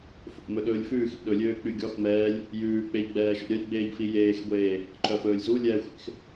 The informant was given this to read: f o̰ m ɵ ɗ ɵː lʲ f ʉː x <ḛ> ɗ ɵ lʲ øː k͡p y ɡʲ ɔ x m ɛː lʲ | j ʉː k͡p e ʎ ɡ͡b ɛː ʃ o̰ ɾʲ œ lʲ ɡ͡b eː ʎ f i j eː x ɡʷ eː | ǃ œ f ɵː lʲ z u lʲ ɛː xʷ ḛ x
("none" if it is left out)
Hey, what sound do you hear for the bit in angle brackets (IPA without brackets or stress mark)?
ḭ